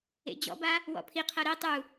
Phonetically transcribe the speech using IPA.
ḛ d͡ʑ ɔ̰ b a | w ɔ̰ pʰ i qʰ ɤ ɾ e tˤ u

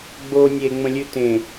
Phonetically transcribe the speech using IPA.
ɡ͡b o nʲ e ŋ͡m ə̃ lʲ ʉ t ẽ

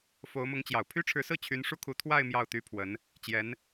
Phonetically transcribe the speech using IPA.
f o˧˥ ʊ̯ m ʊ˧˥ ŋ t͡ɕ j ɑ˨˩ ʊ̯ pʰ y˥ ʈ͡ʂʰ ɻ̩˧˥ s ɹ̩˥˩ t͡ɕʰ y˧˥ n ʂ u˥ kʰ u˧˥ t̪ʰ w a˥˧ ɪ̯ m j ɑ˥˩ ʊ̯ t̪ y˥ pʰ w ə˧˥ n | t͡ɕ j ɛ˧˥ n

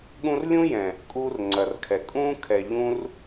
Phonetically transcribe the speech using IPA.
ɠ ũ˧ r lʲ ũ˦ j ɛ̃˨ | kʼ u˧ r ŋ͡ǀ ɐ˨ r kʰ ɛ˨ kʼ ũ˦ kʰ ɛ˨ ʎ ũ˧ r

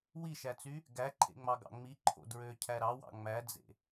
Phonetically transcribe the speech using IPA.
w i ʃ æ t͡s y | ɡ æ ǃʰ ḛ ŋ͡m ɑ ɡ ɑ̰ ŋ͡m i ǃʰ o̰ d ɹ ø cʰ æ ɾ ɑ w ɑ̰ ŋ͡m æ d͡z ḛ

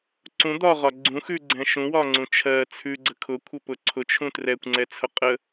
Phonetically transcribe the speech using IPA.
ǀ ũ d̪ ɒ ʁ ɒ ɡ͡ǀ ũ x ʉ ɡ͡ǀ ɛ̃ ʃ ũ w ɒ ŋ͡ǀ ũ t͡ʃʰ ɜ t͡sʰ ʉ ɡ͡ǀ ə kʰ ʊ kʷʰ ə p ʊ ǀʰ ʊ t͡ʃʰ ũ t r ɛ kʷ ŋ͡ǀ ɛ t͡sʰ ʊ qʼ ə

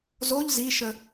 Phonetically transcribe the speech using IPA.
z o ʎ z i ʃ ə

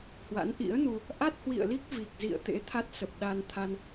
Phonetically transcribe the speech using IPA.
h w a̰˧˥ n ʔ ḭ˧˥ ə̯ n u˧ | ʔ a˦˥ t̚ h w ḭ˧˨ ə̯ l i˦˥ k̚ v i˨˩ k̚ z ḭ˧˨ ə̯ t̪ ḛ˧˥ t̪ʰ a˦˥ t̚ s ə˨˩ p̚ ɗ a˧ n t̪ʰ a˧ n

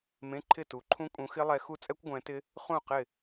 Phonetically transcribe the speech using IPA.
m ẽ˧˥˧ ǃʰ ɪ˥˨ t u˨˦ ǃʰ ũ˦˥ kʼ ũ˨˦ x ɪ˦˥ lˠ ɛ˨˦ x u˦˥ t͡sʼ ɛ˦˥ kʷ ɡʷ ɛ̃˨˦ t ɪ˦˥ | χ ũ˥˨ q ɪ˥˨

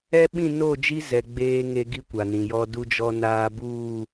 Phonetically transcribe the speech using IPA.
ɛ˦ ɓ ĩ˦˨ n o˦˨ d͡ʒ i˦ z ɛ˨ ɡ͡b eː˦ ŋ e˦ ɡ i˦ kʷ a˨ n ĩ˨ j ɔ˦ d u˦ d͡ʒ ɔ˦ n aː˦ b uː˦˨

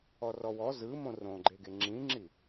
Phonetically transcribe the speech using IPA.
ɔ r ɔ w ɔ z ɯ m õ r õ ɡ͡ǃ e ɡ e ŋ͡ǁ ĩ ŋ͡ǁ i

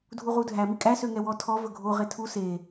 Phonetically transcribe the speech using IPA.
dʱ u ʁ u dʱ æ m i kʼ æ s ø ŋ ɛ w ɔ tʰ ɔ v ɵ ɡʱ o ʁ e tʰ u s e

